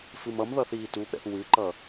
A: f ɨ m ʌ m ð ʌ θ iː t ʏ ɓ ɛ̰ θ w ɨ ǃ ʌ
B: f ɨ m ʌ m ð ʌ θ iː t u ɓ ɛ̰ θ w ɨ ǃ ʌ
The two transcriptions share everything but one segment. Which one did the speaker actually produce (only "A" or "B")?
B